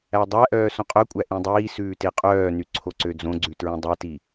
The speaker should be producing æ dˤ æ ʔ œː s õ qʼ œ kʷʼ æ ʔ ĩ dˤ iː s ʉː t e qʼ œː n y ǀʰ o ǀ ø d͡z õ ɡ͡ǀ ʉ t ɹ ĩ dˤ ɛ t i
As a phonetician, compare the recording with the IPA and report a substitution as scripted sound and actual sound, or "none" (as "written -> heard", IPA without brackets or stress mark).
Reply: none